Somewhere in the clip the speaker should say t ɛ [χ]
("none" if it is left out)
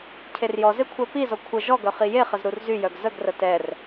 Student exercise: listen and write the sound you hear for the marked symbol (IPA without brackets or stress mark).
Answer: r